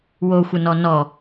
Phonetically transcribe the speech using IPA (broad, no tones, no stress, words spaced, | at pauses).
woxʷənɔ nɔ